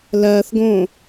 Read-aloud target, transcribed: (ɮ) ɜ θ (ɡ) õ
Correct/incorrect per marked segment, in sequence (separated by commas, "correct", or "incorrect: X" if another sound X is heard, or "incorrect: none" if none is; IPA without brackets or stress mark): incorrect: l, correct